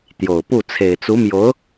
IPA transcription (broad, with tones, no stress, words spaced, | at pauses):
t̪jo˨˩ʊ̯pu˥˩ t͡sʰe˨˩ɪ̯t͡su˧˥mjo˧˥ʊ̯